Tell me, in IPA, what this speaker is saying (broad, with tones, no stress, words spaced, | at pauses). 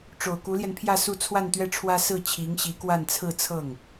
ʈ͡ʂo˨˩ʊ̯ku˧˥ljɛ˧npʰjä˥˧ su˥˧ t͡sʰwa˥˧nt̪ɥɛ˥˩ʈ͡ʂʰwä˥ sɹ̩˥˩t͡ɕʰi˧˥ŋ ɕi˧˥kwa˥˧nt͡sʰɹ̩˥˧ t͡sʰɤ˥˩ŋ